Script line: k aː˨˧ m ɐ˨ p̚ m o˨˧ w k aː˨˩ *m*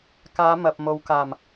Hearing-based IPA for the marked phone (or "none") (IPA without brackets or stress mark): m